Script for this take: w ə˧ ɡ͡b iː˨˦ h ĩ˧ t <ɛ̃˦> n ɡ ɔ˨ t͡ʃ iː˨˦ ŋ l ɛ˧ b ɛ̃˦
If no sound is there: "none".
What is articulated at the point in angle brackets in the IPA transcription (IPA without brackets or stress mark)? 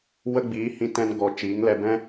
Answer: ɛ̃˧